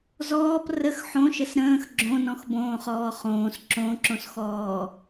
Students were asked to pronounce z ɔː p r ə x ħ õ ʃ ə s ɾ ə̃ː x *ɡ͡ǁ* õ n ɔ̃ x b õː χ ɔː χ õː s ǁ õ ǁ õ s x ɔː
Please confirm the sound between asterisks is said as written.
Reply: yes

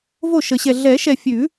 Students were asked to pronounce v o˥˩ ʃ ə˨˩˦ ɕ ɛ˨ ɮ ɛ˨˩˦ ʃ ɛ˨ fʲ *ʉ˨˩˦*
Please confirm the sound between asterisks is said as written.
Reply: yes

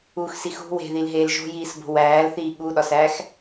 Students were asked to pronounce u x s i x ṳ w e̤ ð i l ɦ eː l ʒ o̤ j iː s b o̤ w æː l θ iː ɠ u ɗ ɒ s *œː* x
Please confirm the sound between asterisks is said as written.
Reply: no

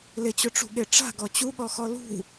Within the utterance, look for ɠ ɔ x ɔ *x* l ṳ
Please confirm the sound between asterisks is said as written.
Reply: no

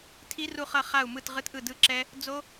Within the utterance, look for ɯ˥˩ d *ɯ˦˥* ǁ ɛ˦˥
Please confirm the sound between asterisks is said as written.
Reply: yes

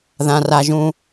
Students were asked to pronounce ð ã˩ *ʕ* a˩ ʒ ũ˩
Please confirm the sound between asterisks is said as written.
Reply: no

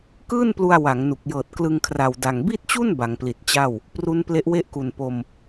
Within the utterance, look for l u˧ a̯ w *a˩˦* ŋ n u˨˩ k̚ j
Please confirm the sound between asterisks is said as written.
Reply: yes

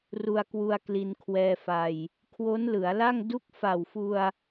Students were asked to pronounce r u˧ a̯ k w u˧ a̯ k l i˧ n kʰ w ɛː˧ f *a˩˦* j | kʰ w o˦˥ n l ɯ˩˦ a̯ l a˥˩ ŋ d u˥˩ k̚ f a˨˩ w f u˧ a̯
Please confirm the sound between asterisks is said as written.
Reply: no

